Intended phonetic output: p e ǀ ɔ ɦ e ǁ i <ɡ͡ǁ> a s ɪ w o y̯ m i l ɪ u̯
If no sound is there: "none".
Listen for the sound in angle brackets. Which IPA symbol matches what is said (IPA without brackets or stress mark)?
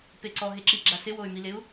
ɡ͡ǁ